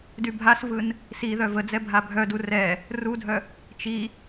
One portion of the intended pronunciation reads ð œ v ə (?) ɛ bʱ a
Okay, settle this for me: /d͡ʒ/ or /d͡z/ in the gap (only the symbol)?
d͡z